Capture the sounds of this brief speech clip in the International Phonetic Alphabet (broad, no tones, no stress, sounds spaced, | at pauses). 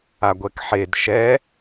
a ɡʷ ɛ k ħ e d ʃ ɛ